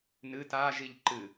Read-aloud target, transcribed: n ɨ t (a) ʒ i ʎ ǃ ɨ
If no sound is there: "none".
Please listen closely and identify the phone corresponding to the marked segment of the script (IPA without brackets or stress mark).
a